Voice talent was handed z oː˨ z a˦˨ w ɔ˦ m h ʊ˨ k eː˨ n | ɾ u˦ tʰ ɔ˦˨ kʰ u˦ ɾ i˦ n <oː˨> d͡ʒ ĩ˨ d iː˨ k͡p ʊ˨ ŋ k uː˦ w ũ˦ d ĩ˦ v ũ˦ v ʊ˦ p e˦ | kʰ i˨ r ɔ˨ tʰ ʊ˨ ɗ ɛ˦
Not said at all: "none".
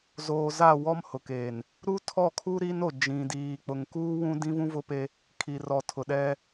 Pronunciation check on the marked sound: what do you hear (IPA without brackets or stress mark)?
o˨